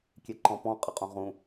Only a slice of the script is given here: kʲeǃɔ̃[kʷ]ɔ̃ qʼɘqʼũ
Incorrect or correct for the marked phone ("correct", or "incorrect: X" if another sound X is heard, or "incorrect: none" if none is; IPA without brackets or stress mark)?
incorrect: p